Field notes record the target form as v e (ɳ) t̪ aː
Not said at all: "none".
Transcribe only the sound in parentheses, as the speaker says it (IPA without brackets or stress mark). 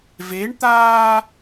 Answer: ɳ